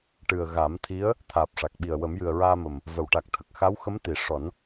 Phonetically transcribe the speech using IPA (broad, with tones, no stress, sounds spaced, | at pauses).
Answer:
ʈ ɨ˨˩ ə̯ ɣ a˨˩˦ m t̪ʰ i˧˥ ə̯ | t̪ʰ aː˨˩ p̚ ʂ a˨˩ k̚ ɓ i˨˩ ə̯ w ə˨˩˦ m j ɨ˨˩ ə̯ ɹ aː˧ m ə˨˩ m | v ə˨˩˨ w ʈ a˨˩ k̚ t̪ʰ ə˨˩ k̚ x a˧˥ w x ə˧˥ m t̪ i˨˩˨ ʂ ɔ˨˩˦ n